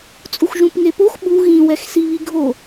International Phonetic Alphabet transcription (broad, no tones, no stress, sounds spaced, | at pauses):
t͡sʼ u x ʒ ũ p ŋ e p o x ɓ u ɣ ĩ w ɛ x s i β i ɡʱ o